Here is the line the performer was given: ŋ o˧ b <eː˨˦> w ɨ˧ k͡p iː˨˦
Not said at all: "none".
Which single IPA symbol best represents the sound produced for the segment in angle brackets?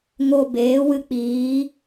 eː˨˦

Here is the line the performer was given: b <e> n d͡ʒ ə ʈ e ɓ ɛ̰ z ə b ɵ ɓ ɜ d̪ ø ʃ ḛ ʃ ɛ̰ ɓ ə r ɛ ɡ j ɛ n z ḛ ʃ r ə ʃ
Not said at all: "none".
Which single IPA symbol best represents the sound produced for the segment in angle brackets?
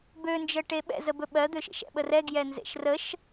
ø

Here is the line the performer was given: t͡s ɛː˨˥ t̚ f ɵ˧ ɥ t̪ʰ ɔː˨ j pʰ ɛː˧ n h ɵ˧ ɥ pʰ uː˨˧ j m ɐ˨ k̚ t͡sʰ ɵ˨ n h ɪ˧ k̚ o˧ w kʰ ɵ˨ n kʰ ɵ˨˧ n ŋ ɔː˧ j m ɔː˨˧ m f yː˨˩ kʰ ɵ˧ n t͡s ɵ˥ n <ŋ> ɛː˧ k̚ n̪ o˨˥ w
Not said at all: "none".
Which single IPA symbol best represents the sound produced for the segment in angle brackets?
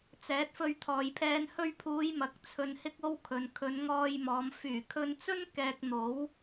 k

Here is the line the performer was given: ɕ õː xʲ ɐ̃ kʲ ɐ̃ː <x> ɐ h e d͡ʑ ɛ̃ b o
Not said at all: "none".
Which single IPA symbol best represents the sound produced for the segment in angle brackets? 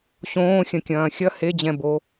xʲ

